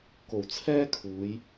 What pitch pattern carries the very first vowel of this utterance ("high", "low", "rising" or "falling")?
low